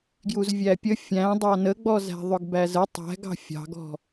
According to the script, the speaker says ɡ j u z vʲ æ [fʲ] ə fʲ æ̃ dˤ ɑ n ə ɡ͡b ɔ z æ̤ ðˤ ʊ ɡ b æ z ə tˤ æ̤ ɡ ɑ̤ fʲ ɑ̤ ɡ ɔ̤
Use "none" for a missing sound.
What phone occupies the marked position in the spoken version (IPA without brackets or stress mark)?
pʲ